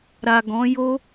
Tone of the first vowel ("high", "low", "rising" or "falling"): low